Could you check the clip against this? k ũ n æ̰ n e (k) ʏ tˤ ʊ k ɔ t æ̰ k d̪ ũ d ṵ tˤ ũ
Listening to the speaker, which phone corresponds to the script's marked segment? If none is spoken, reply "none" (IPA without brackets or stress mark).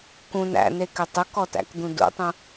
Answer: k